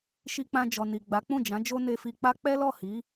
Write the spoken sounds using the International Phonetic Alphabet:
ʃ i˧ k͡p ã˧ d͡ʒ ɔ˨ n i˨ ɡ͡b a˨˦ k͡p ũ˦˨ d͡ʒ ã˨˦ d͡ʒ o˦ n e˧ f i˧ k͡p a˦ k͡p ɛ˦ l ɔ˦˨ h i˨˦

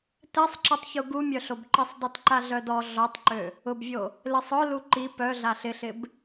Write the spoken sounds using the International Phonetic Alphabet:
t ɛ sˤ ǁ ɛ tˤ ç u ɡ u mʲ œ ɬ o b ǃ i sˤ dˤ i t ǃ a ɮ œ d ɔ ɮ ɔ tˤ ǃ ø | ʊ b vʲ o | l ɪ sˤ œ l u ǃ i p œ ɮ a ɬ ɪ ɬ ɪ b

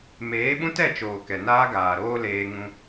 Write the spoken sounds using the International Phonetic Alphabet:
m eː˨˦ ɓ ũ˦ t ɛ˦˨ t͡ʃ oː˨ k ɛ˨ n aː˦ ɡ aː˨ ɾ oː˦ l eː˧ ŋ ũ˧

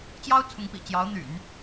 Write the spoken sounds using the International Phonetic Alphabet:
t͡ɕ j ɑ˥ ʊ̯ t͡sʰ ʊ˧˥ ŋ p ḭ˨˩ t͡ɕ j ɑ˧˥ ʊ̯ n̪ y̰˨˩˦ n

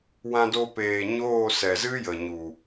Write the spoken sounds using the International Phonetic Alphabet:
w ã˧ d o˧ p eː˨ ɲ oː˦˨ s ɛ˨ z ɨ˦ j ə˨ ɲ u˨

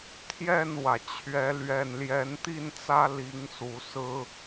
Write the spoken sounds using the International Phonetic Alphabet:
t̪ʰ j ɛ˥˨ n w ä˩ t͡ɕʰ ɥ ɛ˨˦ l ɥ ɛ˨˩ n l j ɛ˨˦ n t̪ i˥˨ n t͡s ä˦ l i˨˦ ŋ s u˨˩ s ɹ̩˦

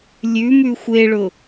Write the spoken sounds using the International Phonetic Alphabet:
lʲ ʉ m ʉ xʷ e ɭ ʊ

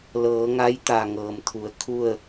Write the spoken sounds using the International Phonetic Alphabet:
l ɤː˩˧ ŋ a˧˥ j t̪ a˩ ŋ ɤː˩ m t̪ʰ u˩˧ ə̯ kʰ u˥˨ ə̯

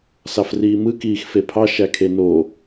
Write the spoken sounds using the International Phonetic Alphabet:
s ɑ f r iː m ɯ k iː x f e pʰ ɑ ʃ æ kʰ e n o

